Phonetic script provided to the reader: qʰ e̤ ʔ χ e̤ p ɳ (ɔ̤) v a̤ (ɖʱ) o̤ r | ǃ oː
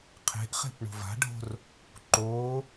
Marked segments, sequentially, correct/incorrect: incorrect: o̤, correct

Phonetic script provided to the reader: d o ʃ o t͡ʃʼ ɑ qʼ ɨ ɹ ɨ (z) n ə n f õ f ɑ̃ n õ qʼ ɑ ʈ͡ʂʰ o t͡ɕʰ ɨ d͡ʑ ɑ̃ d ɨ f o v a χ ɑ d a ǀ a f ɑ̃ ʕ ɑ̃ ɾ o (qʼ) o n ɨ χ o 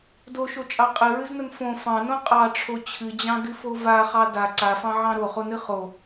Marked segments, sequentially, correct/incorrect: correct, incorrect: χ

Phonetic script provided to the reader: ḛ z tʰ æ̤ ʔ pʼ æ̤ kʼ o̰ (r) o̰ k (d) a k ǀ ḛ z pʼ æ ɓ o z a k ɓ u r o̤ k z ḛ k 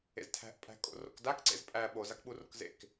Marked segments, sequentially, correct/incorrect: correct, correct

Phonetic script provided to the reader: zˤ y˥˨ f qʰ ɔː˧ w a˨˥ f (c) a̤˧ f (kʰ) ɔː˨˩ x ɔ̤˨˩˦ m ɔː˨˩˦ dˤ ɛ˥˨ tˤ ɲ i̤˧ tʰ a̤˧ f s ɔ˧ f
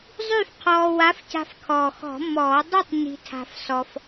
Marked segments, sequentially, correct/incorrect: correct, correct

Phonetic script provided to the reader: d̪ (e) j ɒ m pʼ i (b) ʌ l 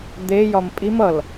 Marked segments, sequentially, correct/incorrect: correct, incorrect: m

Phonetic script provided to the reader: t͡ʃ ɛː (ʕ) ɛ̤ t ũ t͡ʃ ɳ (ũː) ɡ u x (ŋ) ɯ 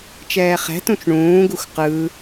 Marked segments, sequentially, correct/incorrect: incorrect: χ, correct, incorrect: q

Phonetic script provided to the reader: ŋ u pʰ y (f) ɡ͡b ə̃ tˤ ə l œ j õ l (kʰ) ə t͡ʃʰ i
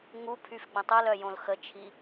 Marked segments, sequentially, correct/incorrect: correct, incorrect: x

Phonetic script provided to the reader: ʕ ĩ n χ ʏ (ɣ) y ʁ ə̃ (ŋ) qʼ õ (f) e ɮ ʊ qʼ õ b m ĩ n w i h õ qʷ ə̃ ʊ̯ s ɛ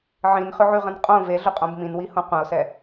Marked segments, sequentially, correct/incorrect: incorrect: ʕ, incorrect: n, incorrect: v

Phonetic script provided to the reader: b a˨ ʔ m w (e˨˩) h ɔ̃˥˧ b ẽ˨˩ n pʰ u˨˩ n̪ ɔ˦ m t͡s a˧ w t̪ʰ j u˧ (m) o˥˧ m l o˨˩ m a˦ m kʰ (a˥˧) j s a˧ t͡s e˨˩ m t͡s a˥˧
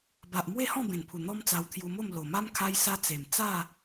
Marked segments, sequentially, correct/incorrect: incorrect: e˥˧, correct, incorrect: a˧

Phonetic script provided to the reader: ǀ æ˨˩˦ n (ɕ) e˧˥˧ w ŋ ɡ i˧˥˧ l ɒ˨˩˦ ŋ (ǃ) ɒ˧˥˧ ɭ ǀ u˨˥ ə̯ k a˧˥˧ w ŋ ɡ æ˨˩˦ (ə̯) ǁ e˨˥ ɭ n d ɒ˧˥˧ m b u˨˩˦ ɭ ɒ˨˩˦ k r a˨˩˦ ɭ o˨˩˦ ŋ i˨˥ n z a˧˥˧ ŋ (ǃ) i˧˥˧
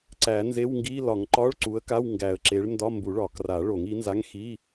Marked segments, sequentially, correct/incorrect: incorrect: z, correct, correct, incorrect: x

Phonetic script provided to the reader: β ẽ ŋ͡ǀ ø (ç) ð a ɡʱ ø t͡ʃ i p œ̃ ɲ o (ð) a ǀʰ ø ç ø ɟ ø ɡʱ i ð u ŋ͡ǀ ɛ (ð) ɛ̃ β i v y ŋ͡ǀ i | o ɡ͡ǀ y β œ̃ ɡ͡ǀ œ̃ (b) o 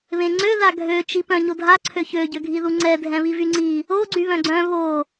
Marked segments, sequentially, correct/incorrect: incorrect: none, incorrect: dʱ, incorrect: dʱ, incorrect: β

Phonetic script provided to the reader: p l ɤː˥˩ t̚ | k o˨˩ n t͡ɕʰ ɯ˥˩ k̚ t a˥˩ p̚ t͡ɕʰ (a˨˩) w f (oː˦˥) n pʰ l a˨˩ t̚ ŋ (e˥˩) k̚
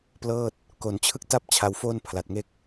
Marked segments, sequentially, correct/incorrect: incorrect: a˧, incorrect: oː˥˩, correct

